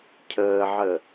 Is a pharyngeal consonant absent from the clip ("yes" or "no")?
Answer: no